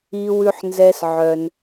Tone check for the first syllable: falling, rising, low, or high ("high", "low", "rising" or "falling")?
high